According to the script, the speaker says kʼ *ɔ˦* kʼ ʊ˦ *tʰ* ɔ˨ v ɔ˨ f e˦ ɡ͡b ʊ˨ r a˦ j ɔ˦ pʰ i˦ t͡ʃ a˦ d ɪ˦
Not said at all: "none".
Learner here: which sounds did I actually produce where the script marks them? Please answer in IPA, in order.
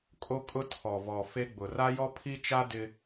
o˦, tʰ

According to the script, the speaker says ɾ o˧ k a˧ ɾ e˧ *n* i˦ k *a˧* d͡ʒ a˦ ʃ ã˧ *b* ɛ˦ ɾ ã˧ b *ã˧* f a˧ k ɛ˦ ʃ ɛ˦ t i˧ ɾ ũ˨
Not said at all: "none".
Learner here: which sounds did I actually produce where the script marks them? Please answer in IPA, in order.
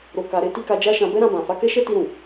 t, a˧, b, ã˨

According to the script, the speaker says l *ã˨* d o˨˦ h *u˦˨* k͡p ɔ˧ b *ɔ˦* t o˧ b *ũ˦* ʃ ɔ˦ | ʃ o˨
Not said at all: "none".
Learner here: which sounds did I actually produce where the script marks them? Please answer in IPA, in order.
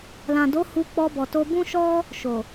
ã˨, u˧, ɔ˨, ũ˦

